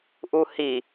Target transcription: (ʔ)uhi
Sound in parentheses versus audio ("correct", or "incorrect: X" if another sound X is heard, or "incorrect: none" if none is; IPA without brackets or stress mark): correct